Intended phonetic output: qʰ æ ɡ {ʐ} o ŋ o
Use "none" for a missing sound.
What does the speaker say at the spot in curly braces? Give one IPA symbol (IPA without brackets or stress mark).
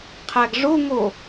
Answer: ʐ